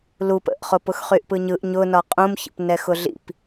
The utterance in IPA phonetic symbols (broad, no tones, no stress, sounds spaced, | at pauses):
l u p ə̰ ʔ χ ʊ p ʊ x χ y ʔ p ɯ ɲ ɯ ʔ ɲ ʊ n ɒ qʼ ũ m ç ə̰ p n ɛ x ʊ ɮ ḭ p